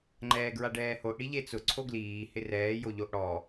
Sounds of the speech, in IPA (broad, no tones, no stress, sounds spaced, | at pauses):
ŋ͡ǃ ɛː ɡ ɹ a ɖ ɛː h o ʔ ɽ i ʎ e t͡s ʊ ǀʰ o ɡ l iː h ɪ r ɛː j o ʎ o ʔ ɽ ɔ